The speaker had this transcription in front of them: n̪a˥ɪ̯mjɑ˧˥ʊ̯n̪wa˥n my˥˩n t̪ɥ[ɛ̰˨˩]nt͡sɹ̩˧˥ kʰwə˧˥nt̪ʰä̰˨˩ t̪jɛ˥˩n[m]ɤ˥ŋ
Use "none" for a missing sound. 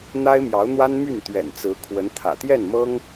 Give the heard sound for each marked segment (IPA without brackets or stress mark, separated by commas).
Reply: ɛ̰˨˩, m